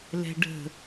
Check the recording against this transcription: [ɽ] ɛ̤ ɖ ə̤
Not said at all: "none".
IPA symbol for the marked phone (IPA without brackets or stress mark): l